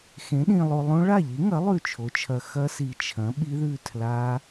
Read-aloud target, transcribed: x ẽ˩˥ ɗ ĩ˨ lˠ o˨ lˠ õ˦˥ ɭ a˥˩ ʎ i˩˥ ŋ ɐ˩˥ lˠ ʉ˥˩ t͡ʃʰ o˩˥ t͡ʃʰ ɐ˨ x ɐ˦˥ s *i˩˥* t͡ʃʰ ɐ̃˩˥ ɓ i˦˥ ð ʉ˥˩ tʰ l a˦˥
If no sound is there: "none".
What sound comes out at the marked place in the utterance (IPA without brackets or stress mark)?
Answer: i˨